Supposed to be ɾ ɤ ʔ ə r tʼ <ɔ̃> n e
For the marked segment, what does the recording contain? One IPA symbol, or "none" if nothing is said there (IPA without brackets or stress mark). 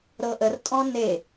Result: ɔ̃